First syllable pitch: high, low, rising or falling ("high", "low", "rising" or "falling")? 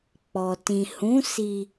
low